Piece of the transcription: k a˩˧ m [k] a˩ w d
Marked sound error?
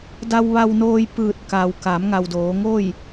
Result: yes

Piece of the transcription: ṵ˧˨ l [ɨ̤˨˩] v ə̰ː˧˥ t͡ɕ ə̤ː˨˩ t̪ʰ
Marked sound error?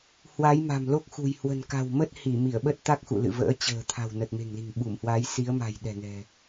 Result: yes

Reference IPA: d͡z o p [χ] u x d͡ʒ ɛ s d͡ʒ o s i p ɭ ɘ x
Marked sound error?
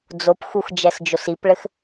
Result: yes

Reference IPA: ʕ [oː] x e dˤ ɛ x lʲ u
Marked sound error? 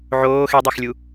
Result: no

